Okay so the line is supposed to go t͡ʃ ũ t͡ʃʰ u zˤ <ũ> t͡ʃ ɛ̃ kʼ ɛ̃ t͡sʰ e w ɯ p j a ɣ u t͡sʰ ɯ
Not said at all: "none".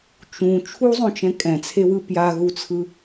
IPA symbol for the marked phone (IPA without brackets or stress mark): õ